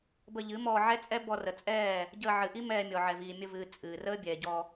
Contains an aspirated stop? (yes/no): no